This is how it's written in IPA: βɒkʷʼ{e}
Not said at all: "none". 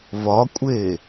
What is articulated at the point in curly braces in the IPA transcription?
e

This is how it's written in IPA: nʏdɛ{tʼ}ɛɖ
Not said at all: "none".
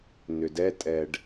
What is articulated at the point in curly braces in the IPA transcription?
tʼ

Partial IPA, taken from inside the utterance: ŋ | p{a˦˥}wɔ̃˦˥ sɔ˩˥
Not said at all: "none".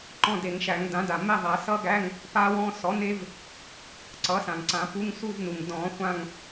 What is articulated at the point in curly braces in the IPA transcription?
a˦˥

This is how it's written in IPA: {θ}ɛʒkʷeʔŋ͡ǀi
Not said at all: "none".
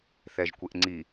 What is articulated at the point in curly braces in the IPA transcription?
θ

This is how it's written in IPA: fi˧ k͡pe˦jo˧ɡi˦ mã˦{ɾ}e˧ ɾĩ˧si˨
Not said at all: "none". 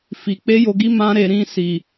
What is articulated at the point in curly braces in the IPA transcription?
ɾ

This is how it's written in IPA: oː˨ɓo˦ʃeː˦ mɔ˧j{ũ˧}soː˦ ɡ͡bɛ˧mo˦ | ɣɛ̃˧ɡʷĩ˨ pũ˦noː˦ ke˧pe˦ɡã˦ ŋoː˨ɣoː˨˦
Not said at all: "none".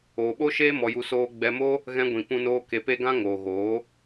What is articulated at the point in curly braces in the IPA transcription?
u˧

